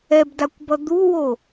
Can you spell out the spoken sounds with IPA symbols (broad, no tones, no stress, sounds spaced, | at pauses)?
ɛ b d a kʷ b ʌ d̪ u w o